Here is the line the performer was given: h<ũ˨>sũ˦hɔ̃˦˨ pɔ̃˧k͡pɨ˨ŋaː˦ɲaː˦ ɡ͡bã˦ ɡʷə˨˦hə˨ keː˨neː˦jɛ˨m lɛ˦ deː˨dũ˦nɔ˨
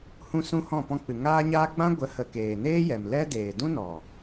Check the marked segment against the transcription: incorrect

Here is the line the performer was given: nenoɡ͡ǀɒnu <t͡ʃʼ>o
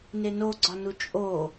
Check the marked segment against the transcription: correct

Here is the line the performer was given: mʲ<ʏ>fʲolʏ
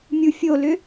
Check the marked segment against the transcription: incorrect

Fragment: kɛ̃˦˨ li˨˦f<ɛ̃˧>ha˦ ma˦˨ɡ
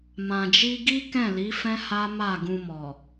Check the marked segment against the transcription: incorrect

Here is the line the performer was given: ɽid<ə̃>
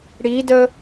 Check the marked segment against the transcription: incorrect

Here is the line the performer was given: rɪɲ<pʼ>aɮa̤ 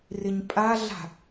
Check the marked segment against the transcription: correct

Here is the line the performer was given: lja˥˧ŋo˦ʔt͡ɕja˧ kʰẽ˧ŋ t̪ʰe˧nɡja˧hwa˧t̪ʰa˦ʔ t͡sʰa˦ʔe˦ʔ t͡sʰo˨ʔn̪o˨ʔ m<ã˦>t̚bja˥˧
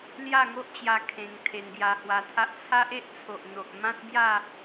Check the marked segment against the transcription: correct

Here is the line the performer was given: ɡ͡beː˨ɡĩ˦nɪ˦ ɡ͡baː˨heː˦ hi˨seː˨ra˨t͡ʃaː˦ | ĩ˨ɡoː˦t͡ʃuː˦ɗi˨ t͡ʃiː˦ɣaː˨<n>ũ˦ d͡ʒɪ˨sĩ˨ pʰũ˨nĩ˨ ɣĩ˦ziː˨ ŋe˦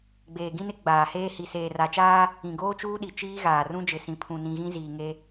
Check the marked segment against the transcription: incorrect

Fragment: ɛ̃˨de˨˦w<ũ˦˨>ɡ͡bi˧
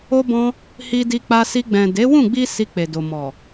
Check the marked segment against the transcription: correct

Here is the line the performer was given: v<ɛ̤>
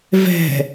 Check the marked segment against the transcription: correct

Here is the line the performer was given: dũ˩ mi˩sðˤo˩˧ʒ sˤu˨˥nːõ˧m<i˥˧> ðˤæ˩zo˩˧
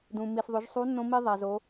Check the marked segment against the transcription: incorrect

